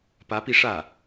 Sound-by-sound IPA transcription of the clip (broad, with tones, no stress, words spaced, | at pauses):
pä˧˥pi˧ʂä˥˩